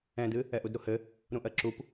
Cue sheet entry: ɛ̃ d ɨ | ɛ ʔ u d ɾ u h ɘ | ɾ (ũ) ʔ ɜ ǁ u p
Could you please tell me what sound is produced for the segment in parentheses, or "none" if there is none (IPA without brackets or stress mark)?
ũ